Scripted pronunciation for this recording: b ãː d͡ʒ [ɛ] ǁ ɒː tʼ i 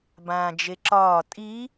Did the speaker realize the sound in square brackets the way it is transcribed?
no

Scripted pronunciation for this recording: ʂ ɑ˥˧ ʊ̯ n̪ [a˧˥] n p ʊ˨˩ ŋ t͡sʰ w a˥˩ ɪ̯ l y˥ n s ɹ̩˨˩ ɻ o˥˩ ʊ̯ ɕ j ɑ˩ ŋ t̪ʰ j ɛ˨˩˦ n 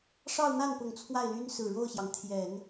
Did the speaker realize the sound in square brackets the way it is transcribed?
no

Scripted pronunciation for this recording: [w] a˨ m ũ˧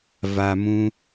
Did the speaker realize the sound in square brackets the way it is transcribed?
no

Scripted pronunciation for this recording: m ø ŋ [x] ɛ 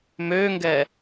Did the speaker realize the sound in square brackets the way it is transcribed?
no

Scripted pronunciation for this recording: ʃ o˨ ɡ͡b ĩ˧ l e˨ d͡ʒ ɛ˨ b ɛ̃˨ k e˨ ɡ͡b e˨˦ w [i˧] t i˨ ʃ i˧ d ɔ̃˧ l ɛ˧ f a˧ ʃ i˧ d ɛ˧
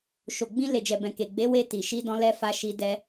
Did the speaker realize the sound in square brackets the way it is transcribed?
no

